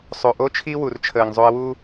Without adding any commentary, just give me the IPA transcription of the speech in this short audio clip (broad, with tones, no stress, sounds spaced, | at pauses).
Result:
sˤ o˨ ʔ o˦ t͡ʃʰ i˦ w u˨ r t͡ʃʰ əː˨ ŋ zˤ o˧ ə̯ w u˦